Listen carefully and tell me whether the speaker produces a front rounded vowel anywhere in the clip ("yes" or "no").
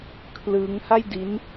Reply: no